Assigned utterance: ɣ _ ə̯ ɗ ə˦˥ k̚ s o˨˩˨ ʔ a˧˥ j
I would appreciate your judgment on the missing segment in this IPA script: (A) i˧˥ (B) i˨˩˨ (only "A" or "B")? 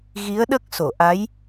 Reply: A